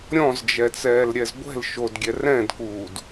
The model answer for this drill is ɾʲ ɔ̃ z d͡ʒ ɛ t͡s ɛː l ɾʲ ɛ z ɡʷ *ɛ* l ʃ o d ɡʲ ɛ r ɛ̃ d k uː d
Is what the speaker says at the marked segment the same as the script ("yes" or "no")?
no